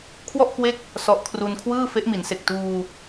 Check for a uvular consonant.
absent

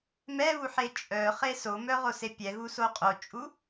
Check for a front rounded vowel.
present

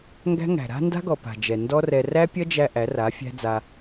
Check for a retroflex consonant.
absent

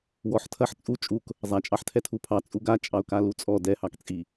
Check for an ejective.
present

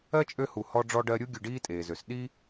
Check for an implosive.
present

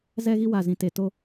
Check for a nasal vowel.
present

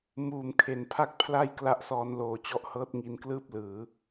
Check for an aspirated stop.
present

